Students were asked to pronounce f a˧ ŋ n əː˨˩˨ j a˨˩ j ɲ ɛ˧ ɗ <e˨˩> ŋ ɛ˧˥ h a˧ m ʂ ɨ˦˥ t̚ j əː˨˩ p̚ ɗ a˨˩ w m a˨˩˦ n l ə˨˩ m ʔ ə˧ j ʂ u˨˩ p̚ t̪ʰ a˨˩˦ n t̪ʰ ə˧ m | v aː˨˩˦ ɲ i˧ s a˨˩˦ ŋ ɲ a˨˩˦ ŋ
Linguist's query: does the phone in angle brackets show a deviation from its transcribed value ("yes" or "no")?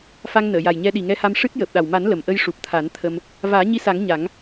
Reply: yes